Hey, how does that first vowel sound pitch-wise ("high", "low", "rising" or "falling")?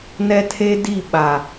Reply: high